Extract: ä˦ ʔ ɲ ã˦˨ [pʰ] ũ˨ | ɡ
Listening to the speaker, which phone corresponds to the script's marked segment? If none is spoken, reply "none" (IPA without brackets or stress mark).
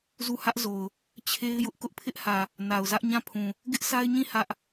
pʰ